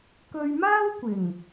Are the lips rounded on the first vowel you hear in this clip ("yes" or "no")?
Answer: yes